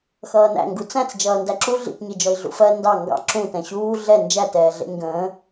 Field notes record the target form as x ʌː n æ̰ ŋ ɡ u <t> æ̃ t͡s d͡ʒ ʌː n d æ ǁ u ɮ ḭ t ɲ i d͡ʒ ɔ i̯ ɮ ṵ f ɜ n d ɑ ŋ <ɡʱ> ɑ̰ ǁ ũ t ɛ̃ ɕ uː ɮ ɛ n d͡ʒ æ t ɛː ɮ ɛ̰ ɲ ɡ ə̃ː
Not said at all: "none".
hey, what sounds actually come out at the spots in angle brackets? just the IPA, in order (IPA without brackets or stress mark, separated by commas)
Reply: t͡s, ɡ